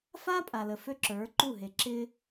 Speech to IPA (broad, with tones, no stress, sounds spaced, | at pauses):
f a˦ pʼ a˨ l ə˨ f ø˦ ǁ ə˞˨˦ ǃ u˦˨ ɦ e˨ ǁ ɪ˦